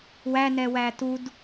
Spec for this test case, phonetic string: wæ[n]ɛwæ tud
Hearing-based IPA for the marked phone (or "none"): n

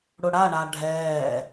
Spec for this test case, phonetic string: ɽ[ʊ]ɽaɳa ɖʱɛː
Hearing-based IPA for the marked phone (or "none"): ʊ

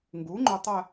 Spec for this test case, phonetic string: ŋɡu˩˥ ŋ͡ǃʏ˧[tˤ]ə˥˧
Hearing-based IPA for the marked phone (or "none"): tˤ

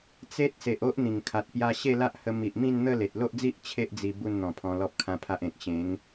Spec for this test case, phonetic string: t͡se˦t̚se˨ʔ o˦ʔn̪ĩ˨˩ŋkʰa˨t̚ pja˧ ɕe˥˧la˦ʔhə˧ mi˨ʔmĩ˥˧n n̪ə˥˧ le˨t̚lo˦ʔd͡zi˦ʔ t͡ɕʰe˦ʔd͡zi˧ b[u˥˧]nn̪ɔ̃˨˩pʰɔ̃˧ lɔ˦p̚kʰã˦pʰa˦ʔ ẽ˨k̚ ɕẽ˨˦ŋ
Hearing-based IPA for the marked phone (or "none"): u˥˧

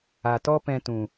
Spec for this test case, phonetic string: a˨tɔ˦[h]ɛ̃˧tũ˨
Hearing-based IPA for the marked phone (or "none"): p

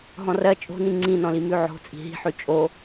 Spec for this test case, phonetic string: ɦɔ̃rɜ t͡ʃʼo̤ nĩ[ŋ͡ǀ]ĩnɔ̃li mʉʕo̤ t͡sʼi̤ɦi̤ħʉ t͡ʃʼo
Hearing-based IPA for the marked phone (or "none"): ŋ͡ǀ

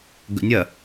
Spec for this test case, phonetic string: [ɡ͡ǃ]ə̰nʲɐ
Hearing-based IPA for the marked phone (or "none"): ɡ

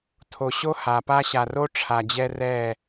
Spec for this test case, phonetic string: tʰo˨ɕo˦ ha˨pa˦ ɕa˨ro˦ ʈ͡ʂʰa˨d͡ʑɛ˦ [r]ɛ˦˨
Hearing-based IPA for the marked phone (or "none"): r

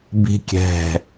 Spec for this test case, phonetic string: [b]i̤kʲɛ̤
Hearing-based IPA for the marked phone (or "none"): b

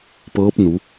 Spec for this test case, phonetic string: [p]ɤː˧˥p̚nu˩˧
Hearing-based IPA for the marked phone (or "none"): p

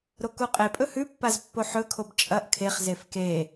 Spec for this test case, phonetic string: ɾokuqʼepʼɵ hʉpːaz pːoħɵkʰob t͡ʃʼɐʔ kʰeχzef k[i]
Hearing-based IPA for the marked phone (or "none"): e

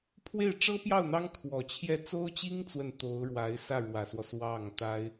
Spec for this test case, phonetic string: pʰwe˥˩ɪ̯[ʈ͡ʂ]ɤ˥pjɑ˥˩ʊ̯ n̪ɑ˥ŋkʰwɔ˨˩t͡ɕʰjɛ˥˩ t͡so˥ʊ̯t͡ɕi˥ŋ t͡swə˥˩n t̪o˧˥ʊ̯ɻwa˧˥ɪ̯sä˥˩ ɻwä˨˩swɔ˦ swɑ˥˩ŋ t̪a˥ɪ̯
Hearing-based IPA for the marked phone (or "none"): ʈ͡ʂ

